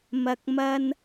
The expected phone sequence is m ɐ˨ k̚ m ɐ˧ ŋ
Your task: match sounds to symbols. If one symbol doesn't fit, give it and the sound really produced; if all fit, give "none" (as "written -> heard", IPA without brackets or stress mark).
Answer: ŋ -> n